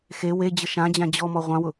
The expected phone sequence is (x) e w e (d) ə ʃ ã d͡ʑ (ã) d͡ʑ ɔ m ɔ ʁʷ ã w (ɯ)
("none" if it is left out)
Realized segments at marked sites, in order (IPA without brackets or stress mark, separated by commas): x, d͡ʑ, ã, ʊ